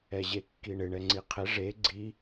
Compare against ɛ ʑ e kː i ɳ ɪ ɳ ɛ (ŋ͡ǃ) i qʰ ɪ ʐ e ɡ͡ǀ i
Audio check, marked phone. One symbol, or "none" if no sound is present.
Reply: ŋ͡ǀ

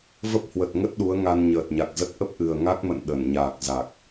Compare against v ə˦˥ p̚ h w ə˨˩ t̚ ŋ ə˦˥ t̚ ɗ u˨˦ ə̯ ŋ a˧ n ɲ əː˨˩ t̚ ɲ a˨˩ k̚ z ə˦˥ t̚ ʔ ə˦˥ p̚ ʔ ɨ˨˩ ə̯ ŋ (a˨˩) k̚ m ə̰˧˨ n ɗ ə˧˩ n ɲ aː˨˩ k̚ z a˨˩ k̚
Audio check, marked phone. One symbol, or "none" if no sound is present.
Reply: a˦˥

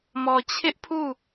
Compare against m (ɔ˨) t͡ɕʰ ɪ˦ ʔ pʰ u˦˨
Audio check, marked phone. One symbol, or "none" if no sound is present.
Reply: ɔ˨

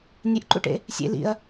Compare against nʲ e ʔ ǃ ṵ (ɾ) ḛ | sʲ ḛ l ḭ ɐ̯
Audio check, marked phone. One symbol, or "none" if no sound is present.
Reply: ʈ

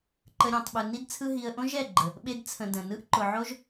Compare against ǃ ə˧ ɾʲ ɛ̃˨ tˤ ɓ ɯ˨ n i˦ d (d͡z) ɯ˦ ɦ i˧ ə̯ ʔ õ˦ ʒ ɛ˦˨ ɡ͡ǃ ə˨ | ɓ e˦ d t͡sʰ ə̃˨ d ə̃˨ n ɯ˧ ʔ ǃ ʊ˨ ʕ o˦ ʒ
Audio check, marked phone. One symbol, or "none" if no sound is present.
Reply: t͡sʰ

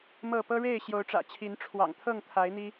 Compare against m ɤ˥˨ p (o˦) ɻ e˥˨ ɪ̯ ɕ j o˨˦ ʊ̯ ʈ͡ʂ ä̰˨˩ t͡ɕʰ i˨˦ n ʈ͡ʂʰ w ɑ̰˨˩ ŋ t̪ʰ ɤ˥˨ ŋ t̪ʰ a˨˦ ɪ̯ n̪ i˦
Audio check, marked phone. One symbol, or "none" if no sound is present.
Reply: ɤ˦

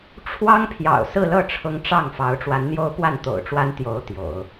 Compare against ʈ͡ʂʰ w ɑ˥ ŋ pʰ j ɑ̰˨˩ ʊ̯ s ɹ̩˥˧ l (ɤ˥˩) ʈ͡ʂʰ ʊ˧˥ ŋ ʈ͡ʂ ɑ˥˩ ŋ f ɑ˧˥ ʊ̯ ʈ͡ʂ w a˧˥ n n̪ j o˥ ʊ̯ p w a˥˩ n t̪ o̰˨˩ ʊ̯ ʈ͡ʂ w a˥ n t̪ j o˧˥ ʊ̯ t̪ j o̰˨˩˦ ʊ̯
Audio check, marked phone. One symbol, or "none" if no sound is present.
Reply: ɤ˥˩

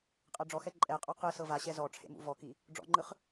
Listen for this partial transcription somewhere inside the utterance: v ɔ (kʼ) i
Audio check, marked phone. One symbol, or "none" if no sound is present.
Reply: k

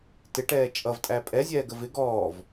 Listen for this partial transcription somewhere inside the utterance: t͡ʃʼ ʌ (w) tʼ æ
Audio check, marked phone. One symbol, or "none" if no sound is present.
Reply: v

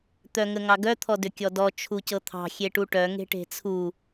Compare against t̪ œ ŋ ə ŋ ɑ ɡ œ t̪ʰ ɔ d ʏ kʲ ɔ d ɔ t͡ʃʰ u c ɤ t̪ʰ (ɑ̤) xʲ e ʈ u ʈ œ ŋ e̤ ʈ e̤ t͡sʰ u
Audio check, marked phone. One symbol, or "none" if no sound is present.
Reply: ɑ̤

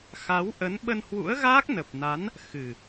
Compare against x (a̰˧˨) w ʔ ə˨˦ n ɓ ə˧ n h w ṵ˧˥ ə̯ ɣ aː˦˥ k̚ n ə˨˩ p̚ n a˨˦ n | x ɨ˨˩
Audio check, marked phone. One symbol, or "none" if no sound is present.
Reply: a˨˦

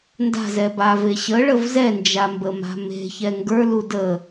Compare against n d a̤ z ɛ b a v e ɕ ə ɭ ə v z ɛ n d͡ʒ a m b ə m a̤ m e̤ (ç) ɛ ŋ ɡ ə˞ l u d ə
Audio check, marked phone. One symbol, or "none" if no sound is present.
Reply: ç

